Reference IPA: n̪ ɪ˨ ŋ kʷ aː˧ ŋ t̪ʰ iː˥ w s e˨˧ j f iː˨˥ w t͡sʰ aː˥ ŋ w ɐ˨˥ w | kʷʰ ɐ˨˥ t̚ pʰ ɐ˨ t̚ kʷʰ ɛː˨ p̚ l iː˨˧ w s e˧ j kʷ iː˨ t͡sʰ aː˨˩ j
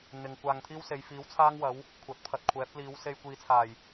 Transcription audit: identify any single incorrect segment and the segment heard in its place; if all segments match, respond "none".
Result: ɛː˨ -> ɛː˨˥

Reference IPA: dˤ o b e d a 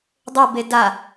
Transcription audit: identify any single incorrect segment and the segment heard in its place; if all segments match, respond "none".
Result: none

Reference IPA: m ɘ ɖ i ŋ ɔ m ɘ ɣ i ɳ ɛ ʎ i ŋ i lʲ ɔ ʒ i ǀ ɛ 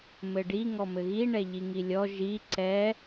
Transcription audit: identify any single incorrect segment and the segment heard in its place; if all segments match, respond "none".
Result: none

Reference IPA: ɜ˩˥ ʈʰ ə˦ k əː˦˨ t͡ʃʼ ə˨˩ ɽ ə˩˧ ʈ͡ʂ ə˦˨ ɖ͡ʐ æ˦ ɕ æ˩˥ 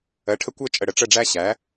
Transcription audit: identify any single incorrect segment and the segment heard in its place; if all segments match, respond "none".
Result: k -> kʷ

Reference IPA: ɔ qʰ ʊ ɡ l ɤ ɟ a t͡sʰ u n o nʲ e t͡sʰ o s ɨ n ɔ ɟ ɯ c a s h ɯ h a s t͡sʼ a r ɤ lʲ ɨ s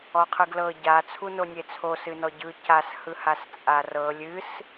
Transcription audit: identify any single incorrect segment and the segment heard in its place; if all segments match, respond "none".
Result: ʊ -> ɯ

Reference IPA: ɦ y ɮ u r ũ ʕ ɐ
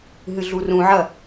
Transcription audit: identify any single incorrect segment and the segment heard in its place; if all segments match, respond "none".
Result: y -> ɨ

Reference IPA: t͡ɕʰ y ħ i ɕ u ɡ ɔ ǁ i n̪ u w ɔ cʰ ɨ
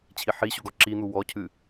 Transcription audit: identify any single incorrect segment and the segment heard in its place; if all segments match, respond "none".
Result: y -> i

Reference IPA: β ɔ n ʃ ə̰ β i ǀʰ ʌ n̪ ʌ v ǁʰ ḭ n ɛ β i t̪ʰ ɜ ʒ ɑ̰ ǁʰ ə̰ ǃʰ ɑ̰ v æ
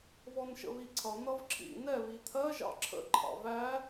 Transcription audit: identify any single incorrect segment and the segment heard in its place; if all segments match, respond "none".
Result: none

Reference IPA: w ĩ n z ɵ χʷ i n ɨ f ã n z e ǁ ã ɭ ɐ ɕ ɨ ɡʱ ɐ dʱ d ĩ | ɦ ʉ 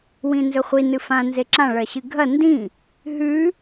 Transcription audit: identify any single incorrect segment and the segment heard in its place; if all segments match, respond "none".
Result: dʱ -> n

